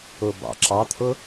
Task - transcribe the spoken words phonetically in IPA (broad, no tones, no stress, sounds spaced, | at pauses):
ʊ b ɑ̰ ǁ ɑ t̪ʰ ʊ